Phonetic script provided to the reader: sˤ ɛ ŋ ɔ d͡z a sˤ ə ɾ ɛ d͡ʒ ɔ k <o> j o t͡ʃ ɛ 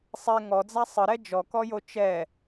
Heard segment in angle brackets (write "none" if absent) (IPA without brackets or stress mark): ɔ